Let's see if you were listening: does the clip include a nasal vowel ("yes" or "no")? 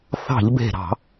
no